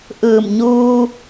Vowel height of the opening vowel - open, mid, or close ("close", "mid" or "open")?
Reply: close